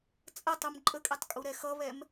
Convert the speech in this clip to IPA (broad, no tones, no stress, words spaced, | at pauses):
t͡sʼɐtˤum ǃʼəkʼɛtˤkʼu ɾɛxʌβɛm